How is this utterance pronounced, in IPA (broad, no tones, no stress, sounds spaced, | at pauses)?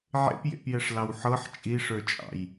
ʕ ḛ p j ḛ p j ɛ ʂ l ɑ w ħ ɤ ħ t͡ʃʼ i ʂ ə˞ t͡ʃʼ ɑ̰ j